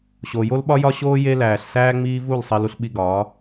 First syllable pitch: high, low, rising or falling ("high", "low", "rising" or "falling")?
low